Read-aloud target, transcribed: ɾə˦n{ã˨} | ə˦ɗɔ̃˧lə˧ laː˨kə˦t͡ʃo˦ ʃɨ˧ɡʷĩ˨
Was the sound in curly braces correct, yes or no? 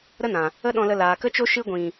yes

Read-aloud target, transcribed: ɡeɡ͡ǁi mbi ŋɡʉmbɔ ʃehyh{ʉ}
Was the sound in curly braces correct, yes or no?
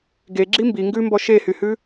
yes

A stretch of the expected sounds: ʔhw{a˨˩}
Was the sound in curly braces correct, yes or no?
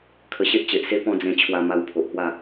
no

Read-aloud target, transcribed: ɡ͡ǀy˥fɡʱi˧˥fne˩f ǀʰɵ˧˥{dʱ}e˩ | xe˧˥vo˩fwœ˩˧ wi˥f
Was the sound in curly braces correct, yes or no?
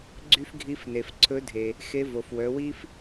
yes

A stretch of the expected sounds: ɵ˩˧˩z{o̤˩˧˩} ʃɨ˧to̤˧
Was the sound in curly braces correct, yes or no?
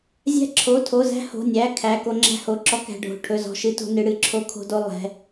no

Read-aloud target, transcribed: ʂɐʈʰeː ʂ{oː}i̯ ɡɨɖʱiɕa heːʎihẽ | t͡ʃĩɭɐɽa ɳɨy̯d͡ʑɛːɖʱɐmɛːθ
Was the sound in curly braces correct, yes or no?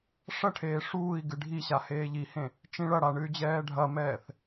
no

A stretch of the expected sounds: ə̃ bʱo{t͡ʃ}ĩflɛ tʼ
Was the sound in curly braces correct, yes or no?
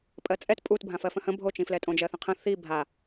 yes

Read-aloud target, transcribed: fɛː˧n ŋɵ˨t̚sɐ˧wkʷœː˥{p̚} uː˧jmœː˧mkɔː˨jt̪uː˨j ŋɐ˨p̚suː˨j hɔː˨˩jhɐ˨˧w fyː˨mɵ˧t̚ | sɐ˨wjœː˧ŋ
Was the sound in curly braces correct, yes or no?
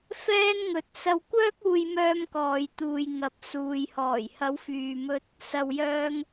no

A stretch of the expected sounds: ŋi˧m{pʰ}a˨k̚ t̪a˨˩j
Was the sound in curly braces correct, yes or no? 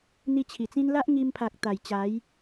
yes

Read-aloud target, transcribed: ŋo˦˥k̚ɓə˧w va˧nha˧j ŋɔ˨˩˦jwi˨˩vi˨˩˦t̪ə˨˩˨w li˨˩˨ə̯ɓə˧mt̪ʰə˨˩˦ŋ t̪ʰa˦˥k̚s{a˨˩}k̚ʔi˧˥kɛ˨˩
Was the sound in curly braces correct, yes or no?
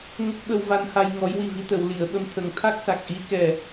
yes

